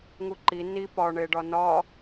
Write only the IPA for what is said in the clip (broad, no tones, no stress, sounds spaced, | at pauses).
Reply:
ŋ u ǃ i n i p ɒ ɳ e ɖ ɒ n ɒ